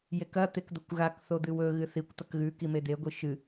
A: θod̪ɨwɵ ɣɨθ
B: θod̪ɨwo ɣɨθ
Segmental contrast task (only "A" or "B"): A